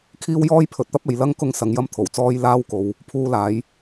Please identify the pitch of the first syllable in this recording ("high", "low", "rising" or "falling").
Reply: high